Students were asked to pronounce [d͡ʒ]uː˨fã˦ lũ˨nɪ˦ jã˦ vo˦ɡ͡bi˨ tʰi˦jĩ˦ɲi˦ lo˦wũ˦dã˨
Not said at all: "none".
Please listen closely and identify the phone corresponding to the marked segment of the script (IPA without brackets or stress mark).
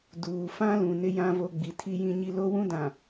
d